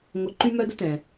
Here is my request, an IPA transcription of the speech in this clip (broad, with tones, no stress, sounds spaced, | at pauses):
ŋʷ ə˧ ǃ y˥ m œ˥ d ə˥ t ɛ̃˩